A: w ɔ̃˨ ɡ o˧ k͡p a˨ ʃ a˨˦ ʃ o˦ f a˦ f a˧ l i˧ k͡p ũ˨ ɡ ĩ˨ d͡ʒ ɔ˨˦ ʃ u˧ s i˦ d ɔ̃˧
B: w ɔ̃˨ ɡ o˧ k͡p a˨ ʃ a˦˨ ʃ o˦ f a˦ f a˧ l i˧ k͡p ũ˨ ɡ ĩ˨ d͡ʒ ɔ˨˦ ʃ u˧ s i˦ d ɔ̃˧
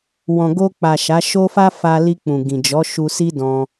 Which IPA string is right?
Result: A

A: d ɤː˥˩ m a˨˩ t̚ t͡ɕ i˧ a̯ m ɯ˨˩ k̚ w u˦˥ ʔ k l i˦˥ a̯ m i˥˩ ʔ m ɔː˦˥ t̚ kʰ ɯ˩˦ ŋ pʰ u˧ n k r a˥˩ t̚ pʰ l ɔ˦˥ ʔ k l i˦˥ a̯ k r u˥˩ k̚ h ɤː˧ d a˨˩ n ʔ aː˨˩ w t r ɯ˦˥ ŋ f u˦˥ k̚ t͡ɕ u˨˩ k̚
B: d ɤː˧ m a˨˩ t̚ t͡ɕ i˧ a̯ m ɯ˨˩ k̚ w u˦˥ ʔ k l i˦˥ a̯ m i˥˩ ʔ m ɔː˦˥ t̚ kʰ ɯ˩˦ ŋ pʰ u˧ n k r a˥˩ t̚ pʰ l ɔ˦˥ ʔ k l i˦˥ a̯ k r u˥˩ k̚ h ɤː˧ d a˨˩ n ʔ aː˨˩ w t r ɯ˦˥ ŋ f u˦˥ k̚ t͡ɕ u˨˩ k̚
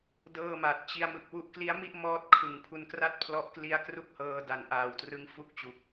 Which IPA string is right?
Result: A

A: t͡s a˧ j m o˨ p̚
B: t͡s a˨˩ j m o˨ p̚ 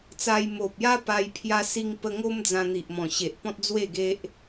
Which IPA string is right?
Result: A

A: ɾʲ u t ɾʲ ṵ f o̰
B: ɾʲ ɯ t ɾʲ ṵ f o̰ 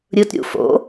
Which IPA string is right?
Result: B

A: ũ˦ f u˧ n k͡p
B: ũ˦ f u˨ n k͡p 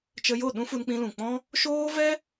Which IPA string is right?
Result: A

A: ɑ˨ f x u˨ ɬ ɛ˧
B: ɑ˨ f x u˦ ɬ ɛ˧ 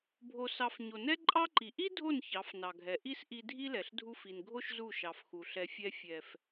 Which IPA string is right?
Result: A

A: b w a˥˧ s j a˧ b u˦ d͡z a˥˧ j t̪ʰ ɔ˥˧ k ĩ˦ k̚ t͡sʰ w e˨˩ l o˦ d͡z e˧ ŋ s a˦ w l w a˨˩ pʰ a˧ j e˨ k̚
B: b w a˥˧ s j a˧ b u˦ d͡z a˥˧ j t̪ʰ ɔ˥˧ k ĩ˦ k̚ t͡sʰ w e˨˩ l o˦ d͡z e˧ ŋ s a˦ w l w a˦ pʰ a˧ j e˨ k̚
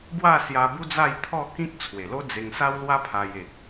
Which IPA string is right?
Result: B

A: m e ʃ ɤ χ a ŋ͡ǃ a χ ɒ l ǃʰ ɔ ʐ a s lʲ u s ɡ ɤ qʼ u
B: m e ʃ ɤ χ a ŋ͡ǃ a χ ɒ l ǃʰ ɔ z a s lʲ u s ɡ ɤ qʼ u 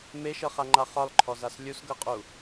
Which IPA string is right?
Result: B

